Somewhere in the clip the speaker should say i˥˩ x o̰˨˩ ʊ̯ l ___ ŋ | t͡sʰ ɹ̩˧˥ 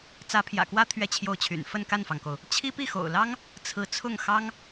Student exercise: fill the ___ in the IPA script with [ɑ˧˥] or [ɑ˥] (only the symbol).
ɑ˥